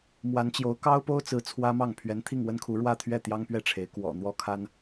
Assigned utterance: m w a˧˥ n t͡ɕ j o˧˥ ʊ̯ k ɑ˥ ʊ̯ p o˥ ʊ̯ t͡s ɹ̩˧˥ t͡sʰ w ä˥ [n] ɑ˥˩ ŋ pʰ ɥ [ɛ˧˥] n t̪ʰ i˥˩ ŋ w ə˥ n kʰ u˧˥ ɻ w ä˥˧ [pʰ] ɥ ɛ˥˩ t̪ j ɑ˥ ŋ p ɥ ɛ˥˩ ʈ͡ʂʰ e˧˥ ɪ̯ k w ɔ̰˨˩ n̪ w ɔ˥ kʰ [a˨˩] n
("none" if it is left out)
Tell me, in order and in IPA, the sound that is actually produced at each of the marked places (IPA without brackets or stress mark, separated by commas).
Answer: m, ɛ˧˥, t̪ʰ, a˥